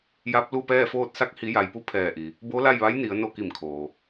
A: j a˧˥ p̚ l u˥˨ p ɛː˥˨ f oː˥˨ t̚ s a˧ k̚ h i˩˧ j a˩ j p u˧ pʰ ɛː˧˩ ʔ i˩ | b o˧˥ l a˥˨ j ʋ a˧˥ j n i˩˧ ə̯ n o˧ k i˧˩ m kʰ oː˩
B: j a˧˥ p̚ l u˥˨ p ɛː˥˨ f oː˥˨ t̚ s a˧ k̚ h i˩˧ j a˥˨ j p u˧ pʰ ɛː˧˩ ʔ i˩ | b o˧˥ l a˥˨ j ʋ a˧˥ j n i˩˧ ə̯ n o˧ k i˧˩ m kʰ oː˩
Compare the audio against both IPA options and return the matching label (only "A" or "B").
A